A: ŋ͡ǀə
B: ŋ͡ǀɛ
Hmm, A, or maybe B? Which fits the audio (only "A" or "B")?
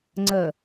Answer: A